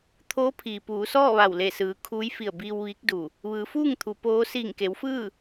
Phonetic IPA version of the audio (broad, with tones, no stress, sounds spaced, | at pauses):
t̪ʰ oː˧˥ pʰ iː˩ p uː˩˧ s ɔː˥˨ ʋ a˧˩ w l e˧˩ s ɯː˩˧ kʰ uː˧˥ j f i˧˩ ə̯ b iː˧ w ʋ iː˧˥ k̚ d u˧˩ | ʋ ɯː˩˧ f uː˥˨ ŋ t̪ʰ u˩˧ p oː˧˥ s iː˧˩ ŋ k e˩˧ w f ɯː˥˨